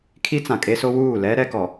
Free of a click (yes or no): yes